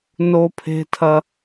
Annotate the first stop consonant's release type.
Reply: aspirated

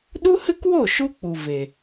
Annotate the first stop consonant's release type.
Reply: implosive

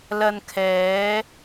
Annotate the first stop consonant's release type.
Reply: aspirated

